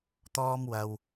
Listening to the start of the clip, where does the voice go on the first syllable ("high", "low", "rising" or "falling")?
high